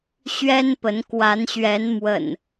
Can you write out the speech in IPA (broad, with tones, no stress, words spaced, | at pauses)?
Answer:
ɕɥɛ˦npə˨˦n kwa˨˦nɕɥɛ˨˦nmwə̰˨˩n